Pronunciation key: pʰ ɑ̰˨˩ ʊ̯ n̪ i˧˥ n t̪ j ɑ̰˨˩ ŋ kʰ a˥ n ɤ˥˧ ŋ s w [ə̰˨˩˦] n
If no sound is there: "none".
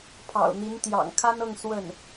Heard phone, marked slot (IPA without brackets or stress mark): ə˥˩